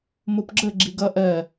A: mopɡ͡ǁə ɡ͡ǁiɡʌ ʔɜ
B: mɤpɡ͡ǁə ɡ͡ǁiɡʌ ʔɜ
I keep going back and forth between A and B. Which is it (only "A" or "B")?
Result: A